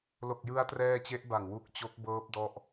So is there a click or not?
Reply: no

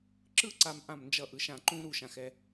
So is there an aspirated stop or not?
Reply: no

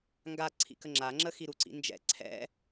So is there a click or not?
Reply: yes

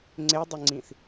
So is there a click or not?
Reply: yes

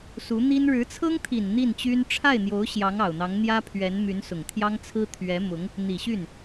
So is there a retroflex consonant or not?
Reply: yes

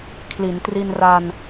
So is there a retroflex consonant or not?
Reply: no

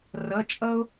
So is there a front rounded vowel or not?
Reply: no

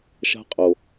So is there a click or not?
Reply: no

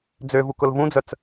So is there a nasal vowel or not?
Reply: yes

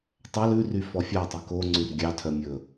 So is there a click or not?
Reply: yes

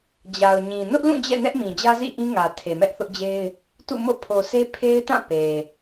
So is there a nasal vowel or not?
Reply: yes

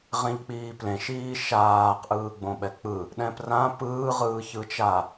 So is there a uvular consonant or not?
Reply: yes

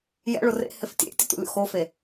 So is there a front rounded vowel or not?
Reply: no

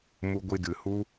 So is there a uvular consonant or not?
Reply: no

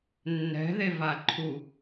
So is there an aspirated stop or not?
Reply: yes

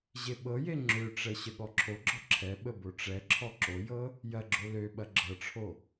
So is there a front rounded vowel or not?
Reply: yes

